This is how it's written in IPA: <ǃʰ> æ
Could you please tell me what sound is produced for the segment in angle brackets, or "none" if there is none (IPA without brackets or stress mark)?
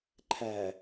ǃʰ